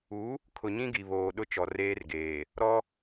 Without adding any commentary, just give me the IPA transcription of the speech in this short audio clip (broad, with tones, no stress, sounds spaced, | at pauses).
u˨˦ | kʰ ʊ˨ ɲ ĩ˦ ɡ i˨ β oː˨ ɗ ʊ˦ t͡ʃ ɔ˨ r eː˦ r ɡ eː˨ | ɾ ɔ˦